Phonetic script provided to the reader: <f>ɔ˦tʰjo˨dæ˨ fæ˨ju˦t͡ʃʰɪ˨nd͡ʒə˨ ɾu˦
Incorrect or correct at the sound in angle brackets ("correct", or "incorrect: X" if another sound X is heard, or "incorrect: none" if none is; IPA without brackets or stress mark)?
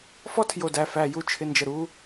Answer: correct